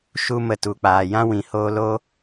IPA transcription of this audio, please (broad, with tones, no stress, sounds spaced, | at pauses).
ʃ u˦ m ə˧ t u˨ k͡p aː˨ j ã˦ w ĩ˨ h oː˧ l o˦